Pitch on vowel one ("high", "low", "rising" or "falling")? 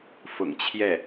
low